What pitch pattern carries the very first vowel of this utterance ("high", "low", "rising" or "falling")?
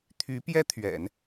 rising